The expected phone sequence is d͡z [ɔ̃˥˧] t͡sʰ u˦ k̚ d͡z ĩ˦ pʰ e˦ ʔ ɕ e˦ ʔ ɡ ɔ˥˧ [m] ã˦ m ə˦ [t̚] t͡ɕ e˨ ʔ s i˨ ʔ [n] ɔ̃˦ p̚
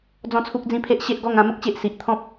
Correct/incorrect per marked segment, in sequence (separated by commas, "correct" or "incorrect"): correct, incorrect, incorrect, incorrect